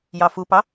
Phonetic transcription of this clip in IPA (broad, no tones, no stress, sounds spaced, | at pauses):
j ɑ f u p ɑ